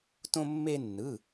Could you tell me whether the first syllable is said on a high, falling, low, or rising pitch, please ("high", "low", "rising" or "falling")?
high